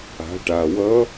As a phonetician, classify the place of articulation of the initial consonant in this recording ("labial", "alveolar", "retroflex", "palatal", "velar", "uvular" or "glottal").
retroflex